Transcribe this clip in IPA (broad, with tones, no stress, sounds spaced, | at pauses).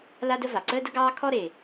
l a˥ d ə˥ v a˩ ǀ əː˥ d ə˥ ɡ ɑː˥ kʰ ɔ˥ ɾ e˩